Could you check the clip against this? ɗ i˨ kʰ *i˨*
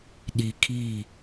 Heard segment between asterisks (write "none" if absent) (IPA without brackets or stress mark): i˦˨